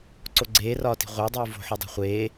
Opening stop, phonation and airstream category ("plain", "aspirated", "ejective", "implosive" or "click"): click